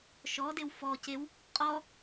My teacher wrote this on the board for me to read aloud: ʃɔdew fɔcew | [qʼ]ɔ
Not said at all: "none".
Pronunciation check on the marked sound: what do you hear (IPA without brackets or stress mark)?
qʼ